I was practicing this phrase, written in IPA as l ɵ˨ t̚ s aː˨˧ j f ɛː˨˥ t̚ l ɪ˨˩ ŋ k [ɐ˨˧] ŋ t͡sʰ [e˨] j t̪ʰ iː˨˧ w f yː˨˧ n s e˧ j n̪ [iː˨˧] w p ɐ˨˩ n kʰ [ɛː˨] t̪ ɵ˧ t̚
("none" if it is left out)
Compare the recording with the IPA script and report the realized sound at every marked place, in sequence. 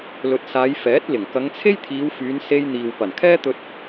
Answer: ɐ˨˧, e˥, iː˨, ɛː˥

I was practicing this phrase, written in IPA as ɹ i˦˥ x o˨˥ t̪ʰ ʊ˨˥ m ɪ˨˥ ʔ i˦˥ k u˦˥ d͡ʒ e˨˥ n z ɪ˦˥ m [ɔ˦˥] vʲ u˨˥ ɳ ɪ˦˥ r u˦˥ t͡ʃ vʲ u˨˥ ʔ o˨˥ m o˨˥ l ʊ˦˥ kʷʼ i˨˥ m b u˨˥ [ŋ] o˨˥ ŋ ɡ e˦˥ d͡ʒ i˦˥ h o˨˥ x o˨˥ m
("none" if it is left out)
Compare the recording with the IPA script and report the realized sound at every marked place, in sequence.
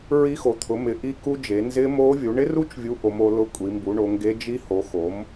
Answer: o˦˥, ɳ

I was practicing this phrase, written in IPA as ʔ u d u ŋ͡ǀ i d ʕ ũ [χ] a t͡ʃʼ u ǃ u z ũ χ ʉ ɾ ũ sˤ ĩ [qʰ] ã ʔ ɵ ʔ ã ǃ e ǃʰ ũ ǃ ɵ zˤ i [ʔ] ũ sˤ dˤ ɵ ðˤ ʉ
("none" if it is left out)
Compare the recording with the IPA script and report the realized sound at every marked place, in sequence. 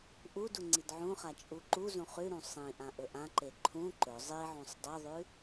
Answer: χ, ʔ, ʕ

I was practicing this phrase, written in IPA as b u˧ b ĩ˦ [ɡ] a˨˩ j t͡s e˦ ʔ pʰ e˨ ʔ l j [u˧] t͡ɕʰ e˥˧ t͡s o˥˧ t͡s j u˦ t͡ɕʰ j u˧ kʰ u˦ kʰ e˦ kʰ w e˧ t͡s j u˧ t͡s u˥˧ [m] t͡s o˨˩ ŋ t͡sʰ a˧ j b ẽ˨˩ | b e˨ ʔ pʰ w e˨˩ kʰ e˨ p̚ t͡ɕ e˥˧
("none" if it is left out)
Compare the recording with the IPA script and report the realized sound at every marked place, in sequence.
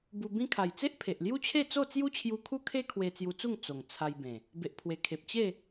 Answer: kʰ, u˦, ŋ

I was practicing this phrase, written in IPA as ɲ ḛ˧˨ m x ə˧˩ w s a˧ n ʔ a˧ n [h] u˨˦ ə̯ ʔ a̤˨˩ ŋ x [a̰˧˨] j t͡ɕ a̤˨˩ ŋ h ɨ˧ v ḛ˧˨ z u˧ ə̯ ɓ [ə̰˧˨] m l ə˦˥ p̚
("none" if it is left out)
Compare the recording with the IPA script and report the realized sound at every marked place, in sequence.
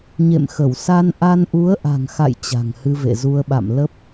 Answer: ʔ, a̰˧˨, a̰˧˨

